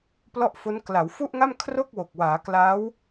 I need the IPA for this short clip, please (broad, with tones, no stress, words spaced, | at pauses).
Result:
plɔ˥˩ʔfo˦˥n kla˩˦wfu˥˩ʔŋa˥˩m kʰro˥˩k̚wo˨˩k̚waː˩˦ kla˦˥w